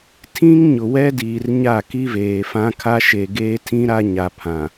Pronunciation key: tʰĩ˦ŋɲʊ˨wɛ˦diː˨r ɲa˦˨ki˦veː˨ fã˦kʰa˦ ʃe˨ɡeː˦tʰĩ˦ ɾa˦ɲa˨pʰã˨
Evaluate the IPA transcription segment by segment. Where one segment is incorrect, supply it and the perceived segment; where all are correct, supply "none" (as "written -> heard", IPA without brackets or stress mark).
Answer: none